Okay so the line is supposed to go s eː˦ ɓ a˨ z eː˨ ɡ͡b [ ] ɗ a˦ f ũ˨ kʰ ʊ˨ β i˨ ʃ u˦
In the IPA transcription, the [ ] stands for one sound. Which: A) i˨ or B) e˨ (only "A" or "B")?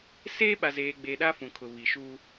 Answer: B